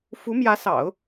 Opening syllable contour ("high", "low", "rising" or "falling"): rising